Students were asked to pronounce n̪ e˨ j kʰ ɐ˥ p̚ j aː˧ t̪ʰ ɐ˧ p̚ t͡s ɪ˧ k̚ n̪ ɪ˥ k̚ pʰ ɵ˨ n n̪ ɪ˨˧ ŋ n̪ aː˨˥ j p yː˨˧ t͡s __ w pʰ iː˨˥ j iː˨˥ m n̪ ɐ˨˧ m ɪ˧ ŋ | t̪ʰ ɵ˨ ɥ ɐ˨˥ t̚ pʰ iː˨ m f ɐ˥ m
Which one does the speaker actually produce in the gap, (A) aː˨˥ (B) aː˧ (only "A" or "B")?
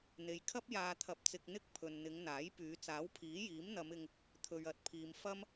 A